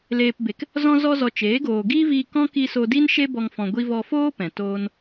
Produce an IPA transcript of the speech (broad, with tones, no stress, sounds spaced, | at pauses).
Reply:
l eː˨ p b e˨ k | z ɔ̃˧ z ɔ˧ z ɔ˨ t͡ʃ eː˨˦ ɡ oː˨ ɡ iː˦ v iː˧ k ɔ̃˦ k i˧ s o˧ d i˦ n ʃ e˦ b ɔ˧ ŋ f ɔ̃˧ ɡʷ i˧ v ɔ˧ f oː˦ p ɛ̃˨ t oː˦ n